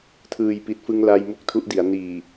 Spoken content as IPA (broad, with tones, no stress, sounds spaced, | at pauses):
tʰ ɯː˨˩ j p i˨˩ t̚ f ɯ˧ ŋ l a˧ j m u˦˥ k̚ tʰ u˦˥ ʔ d i˩˦ a̯ n iː˨˩